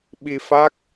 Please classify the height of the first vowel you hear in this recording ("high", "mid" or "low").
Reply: high